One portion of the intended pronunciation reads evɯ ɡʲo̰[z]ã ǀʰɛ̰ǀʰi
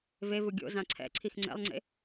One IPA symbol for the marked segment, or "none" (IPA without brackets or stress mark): z